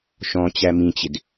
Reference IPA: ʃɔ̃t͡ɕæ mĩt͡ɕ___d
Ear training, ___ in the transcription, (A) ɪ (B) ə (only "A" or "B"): A